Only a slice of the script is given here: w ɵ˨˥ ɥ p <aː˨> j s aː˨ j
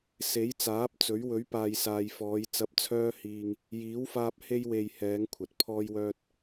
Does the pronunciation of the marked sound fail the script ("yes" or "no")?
no